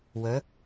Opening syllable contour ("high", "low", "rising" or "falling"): rising